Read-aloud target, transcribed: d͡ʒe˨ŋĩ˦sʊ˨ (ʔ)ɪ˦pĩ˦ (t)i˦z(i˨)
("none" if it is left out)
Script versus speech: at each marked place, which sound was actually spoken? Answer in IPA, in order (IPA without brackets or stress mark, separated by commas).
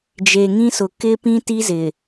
k, t, ɪ˨